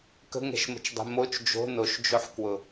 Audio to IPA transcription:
kə̤ŋɛ̤ʃmə̤t͡ʃdˤɛ̤ mot͡ʃ d͡ʒo̤ noʃd͡ʒoħkwʊ

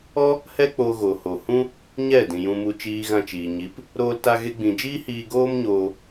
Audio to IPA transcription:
ɔ˦ | hɛ˦k͡po˧ɣo˨ho˨ hũ˦ | ɲɛ˦˨ dĩ˨jũ˧mu˧ t͡ʃiː˧ɣã˧t͡ʃiː˨ɲi˨˦p | ɾoː˦lta˦ ɣe˦ɡ͡bĩ˧ d͡ʒiː˦hiː˧ ɡoː˦m ɲoː˧

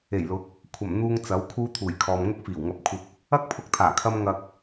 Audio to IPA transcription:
e˨˩jlʊ˨˥k̚ | kʷʰɐ˨˩mn̪uː˧ŋ t͡sɐ˨˥wkʰuː˥ t̪ʰuː˨˩jkʰɔː˨m ŋʊ˥k̚fiː˨˩wŋɐ˧p̚kʷʰɪ˧k̚ | ɐ˥k̚pʰʊ˧k̚t̪ʰaː˨˩ kʰɐ˥mŋɐ˧k̚

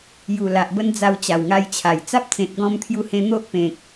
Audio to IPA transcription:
ju˨˩la˨ʔbə˧n d͡za˧wt͡ɕa˨˩wŋa˧jt͡ɕʰa˨˩j t͡sa˦p̚t͡sẽ˨t̚ ɡɔ̃˧mt̪ʰju˧hẽ˧ n̪o˦ʔpẽ˨k̚

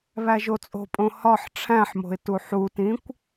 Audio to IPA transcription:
βæʒot͡sʼo̤pʼõ hɒħ ʈ͡ʂʰæ̃ħmo̤ɪ̯ tuħutĩkʷ

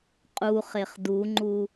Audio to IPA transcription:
qʼuχeχ duŋ͡ǃu

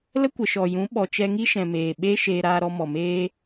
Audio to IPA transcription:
lə˦kʷə˨ʃɔ˨jũ˨˦ ɓɔ˨t͡ʃɛ˧ŋi˦ʃɛ̃˨ meː˨ɓe˦ ʃeː˧ɾaː˧ɾɔ˧ mɔ˨meː˧

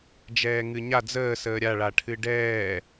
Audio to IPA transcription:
d͡ʒɛːŋɨɲa d͡zəː səːɾʲa ɭaʈʰɨɖɛː

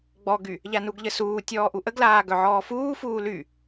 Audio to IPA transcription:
ɡ͡bɔɡy | ʎanuɡʎəsuː tʲɔːʔuʔəɡlaː ɡœʕɔːfuː fuːly

